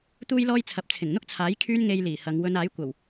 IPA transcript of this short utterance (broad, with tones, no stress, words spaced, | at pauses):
t̪uː˥jlɔː˥jt͡sʰɐ˨˥p̚ t͡sʰɪ˨˩ŋn̪ʊ˥k̚t͡sʰaː˨˥j kʰyː˥nŋe˧jliː˨˩ hɐ˨˧ŋ wɵ˨˧naː˨˥jkʷɐ˨˩w